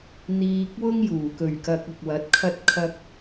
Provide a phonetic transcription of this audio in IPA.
n̪ iː˧ k̚ w ʊ˥ ŋ j uː˨˩ k ɵ˨˩ ɥ k ɐ˧ k̚ ʊ˨ k̚ w ɐ˨˥ t̚ kʰ ɐ˧ t̚ kʰ ɐ˧ k̚

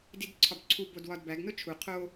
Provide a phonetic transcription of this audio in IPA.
d i d ǀʰ ɒ b ǀʰ u b o d w ɒ d b æ ɡ n o t͡ʃʰ u qʰ o

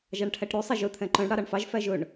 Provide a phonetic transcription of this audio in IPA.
ʒ ɑ ɳ ʈʰ æ ʈ ɾ ʉ sˤ ɛ ʒ ɵ t̪ʰ ɛ̃ ǃ œ̃ ɳ ɽ ɑ ɾ ɑ ɳ f ɑ ʒ f æ ʒ ɵ ɳ

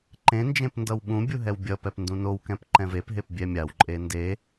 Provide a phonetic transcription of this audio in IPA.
ǃ ẽ n d͡ʒ ẽ p n d ʌ w ɓ ũ bʲ u ɦ ɛ w bʲ ʌ p ɛ p n d ũ n o w k ɛ̃ p ǃ ɛ̃ v e p ɦ e p bʲ ɛ mʲ a w ǃʼ e n d e

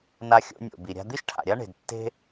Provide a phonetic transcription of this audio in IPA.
n a˧ xʲ o̰˧ nʲ o̰˩ b i˩ ɾʲ a̤˧ d̪ i˥ ʃ ʈʰ a̰˩ ɾʲ a˥ ɳ e̤˩ d tː e̤˥

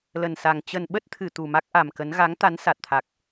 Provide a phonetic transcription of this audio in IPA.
l ə˨˩ n s a˨˩ ŋ t͡ɕ ə˨˩ n ɓ ə˦˥ t̚ t̪ʰ ɨ˧˩ t̪ u˨˩ m a˦˥ k̚ ʔ a˨˩ m k ə˨˦ n ɣ a˨˦ ŋ t̪ a˨˦ n s a˨˩ t̚ t̪ʰ a˨˩ k̚

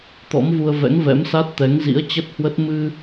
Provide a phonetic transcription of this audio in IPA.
t̪ ɔ̰˧˥ m v u˧ ə̯ v ɛ̰˧˥ ŋ v ɛ̰˧˥ m s a˦˥ t̚ t̪ ɛ˨˦ ŋ z ḭ˧˥ ə̯ t͡ɕ ə˦˥ t̚ h w ə˦˥ t̚ m ɨ˧

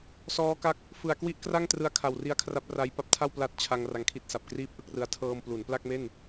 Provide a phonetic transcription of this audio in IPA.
s ɔː˦˥ k a˦˥ k̚ | f ɯ˨˩ a̯ k w i˥˩ ʔ k r a˥˩ ŋ t r ɯ˧ a̯ kʰ a˨˩ w r i˦˥ a̯ kʰ r a˦˥ p̚ r a˦˥ j p a˦˥ p̚ tʰ a˥˩ w p l a˦˥ t̚ t͡ɕʰ a˧ ŋ r a˧ ŋ kʰ i˦˥ t̚ s a˨˩ p̚ k r iː˥˩ p̚ ʔ ɯ˥˩ k̚ r ɯ˧ a̯ tʰ ɤː˧ m p l u˩˦ n p l a˥˩ k̚ m e˥˩ n

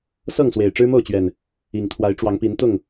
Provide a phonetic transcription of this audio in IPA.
s ɤ˥˨ ŋ s w e˨˩ ɪ̯ ʈ͡ʂ ɻ̩˦ m o˥˨ ʊ̯ t͡ɕ ɥ ɛ˨˩ n | i˨˩ ŋ t̪ʰ w a˨˦ ɪ̯ ʈ͡ʂ w ɑ˨˦ ŋ p i˨˦ n t̪ ʊ˥˨ ŋ

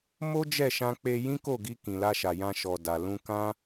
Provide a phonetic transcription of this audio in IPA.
m o˦ d͡ʒ ɛ˦˨ ʃ ã˧ k͡p e˧ j ĩ˦ k o˦˨ ɡ i˧ k ĩ˨ l a˧ ʃ a˨ j ã˧ ʃ ɔ˨ d a˨ l ũ˧ k ã˦

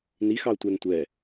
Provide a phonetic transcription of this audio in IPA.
n i x ɑ ʊ̯ tʷ ɛ n tʷ ɛ

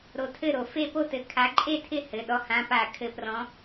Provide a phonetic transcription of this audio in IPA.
ɾ o˨˦ tʰ ɘ˥˩ ɾ o˧˩˧ f e˥˧ p o˥˧ t ɘ˨˦ kʰ a˨˦ ǃʼ e˥˩ tʰ ɪ˥˩ h ɘ˩˧˩ ɗ ɔ˨˦ h ã˩˧˩ p a˧˩˧ kʰ ɘ˨˦ p r ɔ̃˨˦

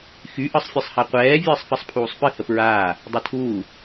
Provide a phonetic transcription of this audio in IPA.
x y ʔ ɯ sˤ fʲ ɯ sˤ h a qʷ ɛː vʲ ɨː sˤ f ɛ sˤ pʰ uː sˤ p ɨ h ə p ɹ aː | dˤ e tʰ uː

